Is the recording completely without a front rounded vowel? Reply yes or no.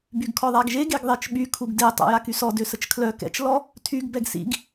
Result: no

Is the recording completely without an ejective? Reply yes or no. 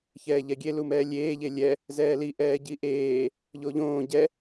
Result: yes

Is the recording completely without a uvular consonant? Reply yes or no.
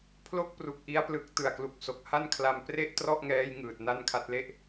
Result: yes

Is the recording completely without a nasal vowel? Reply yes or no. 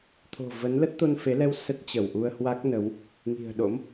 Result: yes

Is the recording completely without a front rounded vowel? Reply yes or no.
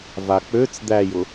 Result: no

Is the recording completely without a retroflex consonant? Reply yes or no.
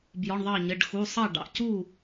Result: no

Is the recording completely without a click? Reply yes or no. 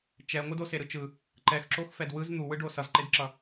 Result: no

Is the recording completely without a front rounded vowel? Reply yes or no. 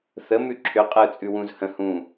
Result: no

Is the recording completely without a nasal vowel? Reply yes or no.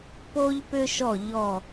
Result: yes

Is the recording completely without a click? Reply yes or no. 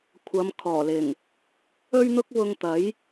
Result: yes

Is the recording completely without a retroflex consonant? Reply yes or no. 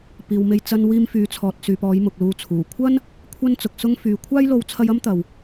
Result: yes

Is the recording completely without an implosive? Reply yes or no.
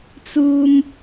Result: yes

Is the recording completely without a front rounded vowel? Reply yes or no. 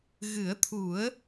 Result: yes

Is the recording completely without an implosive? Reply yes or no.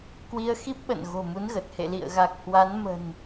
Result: no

